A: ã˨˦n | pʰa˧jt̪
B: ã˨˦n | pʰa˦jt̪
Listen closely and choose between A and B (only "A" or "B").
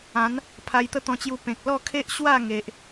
A